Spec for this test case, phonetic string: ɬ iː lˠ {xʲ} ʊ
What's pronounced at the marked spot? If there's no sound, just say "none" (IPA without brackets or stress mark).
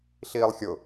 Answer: xʲ